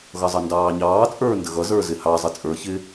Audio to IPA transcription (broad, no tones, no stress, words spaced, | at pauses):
ɣʌzˤʌndɑːɲɑː t͡sʼə˞ ndəɣʌ zə˞zɪhɑ zˤət͡sʼə˞ çɪ